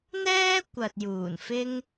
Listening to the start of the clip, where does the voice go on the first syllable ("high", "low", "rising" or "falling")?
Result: high